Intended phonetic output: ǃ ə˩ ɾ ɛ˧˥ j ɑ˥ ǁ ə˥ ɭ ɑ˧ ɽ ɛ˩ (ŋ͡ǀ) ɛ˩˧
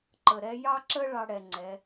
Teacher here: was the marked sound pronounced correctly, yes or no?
yes